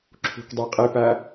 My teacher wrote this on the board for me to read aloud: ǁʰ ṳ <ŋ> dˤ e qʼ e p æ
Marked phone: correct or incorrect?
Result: incorrect